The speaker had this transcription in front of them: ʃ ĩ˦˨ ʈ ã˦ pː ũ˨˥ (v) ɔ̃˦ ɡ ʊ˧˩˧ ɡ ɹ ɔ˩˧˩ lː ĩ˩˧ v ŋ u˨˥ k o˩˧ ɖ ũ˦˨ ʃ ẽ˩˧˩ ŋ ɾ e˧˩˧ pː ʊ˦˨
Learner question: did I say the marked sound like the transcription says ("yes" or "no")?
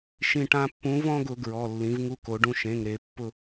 yes